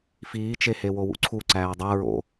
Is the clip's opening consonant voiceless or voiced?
voiceless